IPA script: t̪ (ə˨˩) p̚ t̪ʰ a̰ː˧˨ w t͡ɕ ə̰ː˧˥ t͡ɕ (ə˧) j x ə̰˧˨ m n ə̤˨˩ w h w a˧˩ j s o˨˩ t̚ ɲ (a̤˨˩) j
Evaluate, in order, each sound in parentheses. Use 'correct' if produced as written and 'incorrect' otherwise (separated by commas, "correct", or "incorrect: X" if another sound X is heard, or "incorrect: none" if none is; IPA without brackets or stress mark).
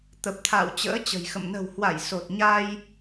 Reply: correct, incorrect: ə̤˨˩, incorrect: a˧